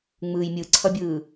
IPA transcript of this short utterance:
ŋ͡m ɯː j mʲ ɯ ǀʰ ʌ bʲ ɯː

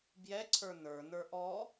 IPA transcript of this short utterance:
b j ɛ ǀʰ ə˞ n ə˞ n ə˞ ʔ ɔ

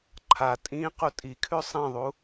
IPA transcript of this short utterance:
ǃʰ a tʼ ĩ q u tʼ i kʰ ʉ sˤ ẽ ðˤ u

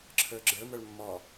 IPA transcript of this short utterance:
ǁʰ ə˞ ɡ͡ǁ ə˞ m ə˞ ɭ mː ɔ

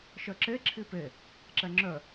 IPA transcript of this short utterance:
ʃ œ ǁ e ǁʰ i p e | ǁ ɛ ŋ͡ǁ œ

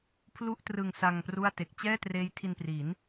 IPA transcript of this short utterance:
pʰ l u˥˩ ʔ t r ɯ˧ ŋ s a˧ ŋ p r u˥˩ a̯ t e˨˩ k̚ t͡ɕ ɛː˥˩ t r eː˦˥ j tʰ i˧ n p r i˩˦ n

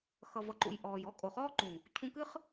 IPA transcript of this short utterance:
x ʌ˨ v ʌ˨ ǃ ṵ˨ j ʔ ɔː˨ j ɔ˦ kʼ o˨ χ ɔː˦ ǃ ũ˨ | cʰ ũ˧ k ɨ˦ χ

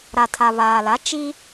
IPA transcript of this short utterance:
ɾ a˨ tʰ a˨ β aː˨ l a˨˦ t͡ʃ i˦

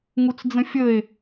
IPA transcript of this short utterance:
ŋ u t͡s d͡z ə̃ fʲ ə e̯

